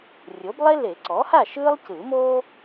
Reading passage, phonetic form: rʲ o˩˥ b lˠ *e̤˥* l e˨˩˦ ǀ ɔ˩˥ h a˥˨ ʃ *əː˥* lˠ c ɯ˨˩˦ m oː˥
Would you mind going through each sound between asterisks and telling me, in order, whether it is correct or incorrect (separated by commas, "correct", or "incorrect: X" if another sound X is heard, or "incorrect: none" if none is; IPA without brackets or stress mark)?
incorrect: e˥, incorrect: ɯː˥